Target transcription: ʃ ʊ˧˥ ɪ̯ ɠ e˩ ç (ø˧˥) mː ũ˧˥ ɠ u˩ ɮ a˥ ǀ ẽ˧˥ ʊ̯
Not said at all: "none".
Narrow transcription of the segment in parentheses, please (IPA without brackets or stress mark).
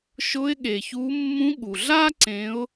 u˧˥